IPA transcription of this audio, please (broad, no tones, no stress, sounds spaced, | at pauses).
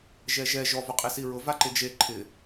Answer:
ʒ ɛ ʒ ɛ ʒ ɔ v ʊ qʼ e s i ɹ ʊ v a ǃ ɪ d͡ʒ e ǃʰ ɪ